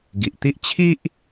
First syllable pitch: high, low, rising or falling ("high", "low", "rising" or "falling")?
low